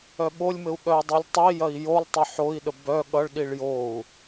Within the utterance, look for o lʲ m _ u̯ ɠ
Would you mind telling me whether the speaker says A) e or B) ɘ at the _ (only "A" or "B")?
B